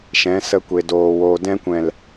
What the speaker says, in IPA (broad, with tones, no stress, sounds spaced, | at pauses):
ʃ ɛ̃˨˦ s ə˧ kʷ e˨ d oː˨ w oː˨ d ɛ̃˧ kʷ ɛ̃˨ l